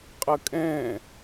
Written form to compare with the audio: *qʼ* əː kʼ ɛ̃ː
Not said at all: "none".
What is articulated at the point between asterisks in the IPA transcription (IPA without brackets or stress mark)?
qʼ